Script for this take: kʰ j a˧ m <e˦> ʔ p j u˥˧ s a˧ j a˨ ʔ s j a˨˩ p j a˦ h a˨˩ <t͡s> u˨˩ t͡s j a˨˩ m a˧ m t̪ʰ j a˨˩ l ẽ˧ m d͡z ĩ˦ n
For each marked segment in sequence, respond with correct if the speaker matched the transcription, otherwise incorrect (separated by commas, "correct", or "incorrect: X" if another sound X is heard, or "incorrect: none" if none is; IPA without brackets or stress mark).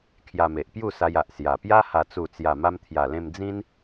incorrect: e˨, correct